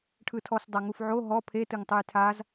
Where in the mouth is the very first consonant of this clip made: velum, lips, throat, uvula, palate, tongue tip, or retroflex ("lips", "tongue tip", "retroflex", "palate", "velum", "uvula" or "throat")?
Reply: retroflex